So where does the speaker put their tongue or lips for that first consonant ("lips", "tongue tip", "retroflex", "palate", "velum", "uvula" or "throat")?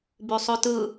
lips